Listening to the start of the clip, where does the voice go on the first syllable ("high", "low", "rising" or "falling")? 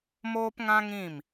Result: high